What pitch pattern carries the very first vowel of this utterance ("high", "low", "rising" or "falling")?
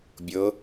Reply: rising